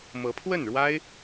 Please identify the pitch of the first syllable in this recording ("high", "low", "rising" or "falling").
rising